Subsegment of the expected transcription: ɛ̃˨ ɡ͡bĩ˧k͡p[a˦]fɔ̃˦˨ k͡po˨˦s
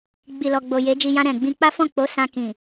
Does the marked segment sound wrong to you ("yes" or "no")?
no